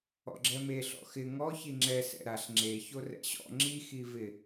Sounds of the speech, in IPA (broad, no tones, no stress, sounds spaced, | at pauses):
ɔ̰ ɡ͡ǁ ɛ m e ɬ ɔ̰ x ɪ ŋ ɔ ç i ŋ͡ǁ ɛ s ɛ̰ ɾ a ɬ ŋ͡ǁ e ç o r ɛ̰ ɕ ɔ̰ ŋ͡ǁ i x i v ɪ